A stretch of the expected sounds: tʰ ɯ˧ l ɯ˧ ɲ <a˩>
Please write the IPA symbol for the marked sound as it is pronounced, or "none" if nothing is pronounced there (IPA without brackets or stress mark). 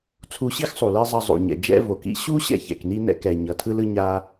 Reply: a˧